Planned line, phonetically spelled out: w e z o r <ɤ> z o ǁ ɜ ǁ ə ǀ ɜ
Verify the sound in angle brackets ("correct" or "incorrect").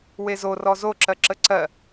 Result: incorrect